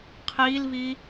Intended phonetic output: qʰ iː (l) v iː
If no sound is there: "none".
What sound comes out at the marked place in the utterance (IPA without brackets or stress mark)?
l